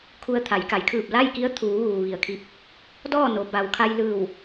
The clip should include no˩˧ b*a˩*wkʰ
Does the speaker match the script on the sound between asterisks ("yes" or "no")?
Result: yes